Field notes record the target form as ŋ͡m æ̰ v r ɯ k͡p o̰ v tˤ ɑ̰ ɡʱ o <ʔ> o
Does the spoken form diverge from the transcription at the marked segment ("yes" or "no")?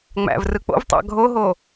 yes